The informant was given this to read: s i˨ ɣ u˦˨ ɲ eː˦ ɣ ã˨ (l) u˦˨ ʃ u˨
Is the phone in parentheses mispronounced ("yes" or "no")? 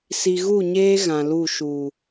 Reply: no